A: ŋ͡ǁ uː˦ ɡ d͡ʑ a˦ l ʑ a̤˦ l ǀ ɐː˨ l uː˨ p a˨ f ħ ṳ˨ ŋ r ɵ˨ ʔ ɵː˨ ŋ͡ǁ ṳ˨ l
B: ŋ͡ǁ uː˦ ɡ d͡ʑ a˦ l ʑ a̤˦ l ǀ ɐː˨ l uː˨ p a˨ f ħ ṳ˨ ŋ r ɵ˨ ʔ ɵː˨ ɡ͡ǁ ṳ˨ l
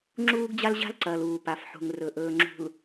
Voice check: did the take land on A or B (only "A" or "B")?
A